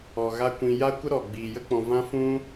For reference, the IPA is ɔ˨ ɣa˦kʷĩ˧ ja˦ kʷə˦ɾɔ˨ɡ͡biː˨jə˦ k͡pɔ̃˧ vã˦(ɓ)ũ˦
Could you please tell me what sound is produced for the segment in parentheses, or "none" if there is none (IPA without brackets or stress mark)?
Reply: f